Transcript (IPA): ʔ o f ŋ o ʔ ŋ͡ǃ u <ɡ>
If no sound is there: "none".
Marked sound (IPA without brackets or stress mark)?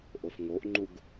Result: ɡ